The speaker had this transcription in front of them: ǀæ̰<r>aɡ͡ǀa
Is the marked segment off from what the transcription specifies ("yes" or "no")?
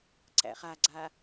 yes